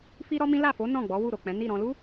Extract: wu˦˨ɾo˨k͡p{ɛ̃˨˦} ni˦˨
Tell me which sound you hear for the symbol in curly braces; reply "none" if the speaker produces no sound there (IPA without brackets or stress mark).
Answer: ɛ̃˨˦